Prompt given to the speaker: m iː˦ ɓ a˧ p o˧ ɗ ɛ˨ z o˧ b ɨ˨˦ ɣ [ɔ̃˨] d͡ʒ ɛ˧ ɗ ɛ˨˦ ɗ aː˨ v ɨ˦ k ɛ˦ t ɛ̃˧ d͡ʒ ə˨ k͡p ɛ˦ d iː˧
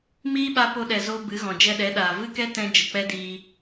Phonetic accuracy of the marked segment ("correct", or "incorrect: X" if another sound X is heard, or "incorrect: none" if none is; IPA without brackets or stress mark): correct